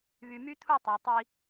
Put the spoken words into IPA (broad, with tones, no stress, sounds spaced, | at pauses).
β y˨ m y˦ t̪ʰ u˦˨ tˤ æ˨ tˤ i˦